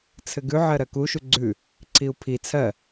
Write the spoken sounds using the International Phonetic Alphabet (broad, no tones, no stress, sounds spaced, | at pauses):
t͡sʰ ɘ ɡ ʉ ʕ ɜ ɾ ɜ k u ʃ u ɡ͡ǀ ʉ | ǀʰ i u̯ pʰ i t͡sʰ ɜ